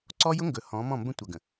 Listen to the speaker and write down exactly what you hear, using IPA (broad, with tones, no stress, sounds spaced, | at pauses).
ǀ ɔ˦ j ʊ˦ ŋ ɡ ɵ˨ h ɔ̃˨˦ m ɔ̃˦˨ m b ə̃˦ tʷ ʌ˨ ɡ ə̃˨